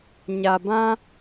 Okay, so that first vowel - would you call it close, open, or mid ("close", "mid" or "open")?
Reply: open